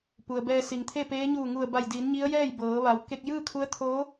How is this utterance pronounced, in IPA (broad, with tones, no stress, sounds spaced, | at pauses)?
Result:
p u˩ ə̯ b ɛː˧ s i˩ ŋ t̪ʰ e˥˨ p eː˧˥ ɲ uː˧˩ ŋ u˧˩ ə̯ b a˧˩ j d iː˩˧ n ɲ i˧˥ ə̯ j ɛː˥˨ j b ɤː˩˧ ʋ a˩˧ w k e˧ k̚ j ɯː˥˨ kʰ u˧˥ ə̯ t̪ʰ oː˧˥